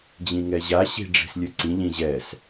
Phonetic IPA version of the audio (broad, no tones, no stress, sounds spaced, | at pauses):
d͡ʑ ĩ ŋ ɛ ʑ a ɕ i̤ ɖ͡ʐ i̤ s lʲ ɨ ǀ ĩ ʎ ĩ ʑ ɛ s